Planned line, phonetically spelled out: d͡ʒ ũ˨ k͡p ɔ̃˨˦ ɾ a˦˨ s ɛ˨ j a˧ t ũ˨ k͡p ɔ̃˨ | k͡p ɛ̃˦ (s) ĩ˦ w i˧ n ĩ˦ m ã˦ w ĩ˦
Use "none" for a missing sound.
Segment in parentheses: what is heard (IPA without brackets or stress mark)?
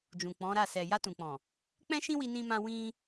ʃ